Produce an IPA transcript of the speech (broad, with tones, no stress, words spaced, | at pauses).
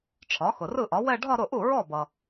ʈ͡ʂʰɒ˩˥ xʊ˩rɯ˥˩ʔɒ˩˥ wɛ˥˧ ɖʱɒ˥˧ɾʊ˥˩ʔu˥˩ ɹɔ˥˩bʌ˩